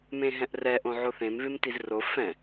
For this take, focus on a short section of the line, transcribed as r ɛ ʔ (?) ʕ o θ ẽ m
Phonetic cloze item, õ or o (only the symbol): õ